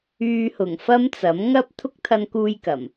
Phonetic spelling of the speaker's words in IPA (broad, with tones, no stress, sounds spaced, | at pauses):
yː˧ h ʊ˨˩ ŋ f ɐ˥ m t͡s ɐ˨˥ m ŋ ɐ˥ p̚ t̪ʰ ʊ˥ k̚ t̪ʰ ɐ˧ n k uː˧ j k ɐ˨˩ m